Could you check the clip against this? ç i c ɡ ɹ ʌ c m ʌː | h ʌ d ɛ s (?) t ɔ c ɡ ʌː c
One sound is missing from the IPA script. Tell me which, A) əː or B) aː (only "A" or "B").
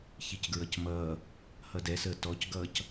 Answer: A